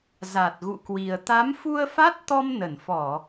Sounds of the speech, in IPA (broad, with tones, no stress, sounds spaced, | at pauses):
z a˨˩ t̚ ɣ ṵ˧˨ k w i˨˩ ə̯ t̪ a˨˦ m f u˧ ə̯ f a˦˥ t̚ t̪ ɔ˧ m n ə˧˩ n f ɔ˧˩˨